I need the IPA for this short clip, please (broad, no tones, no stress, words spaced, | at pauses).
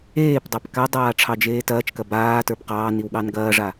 eːpdˤɑp kadˤaː ʈ͡ʂʰɑd͡ʒeːtɐːt͡ʃkɐ baː tə˞bqɑːniw ɠɑnɡɐːʐa